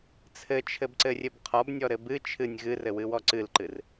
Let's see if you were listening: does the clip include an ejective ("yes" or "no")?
no